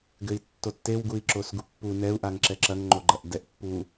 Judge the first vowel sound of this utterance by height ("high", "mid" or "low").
mid